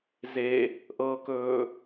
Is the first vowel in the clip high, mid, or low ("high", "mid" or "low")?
mid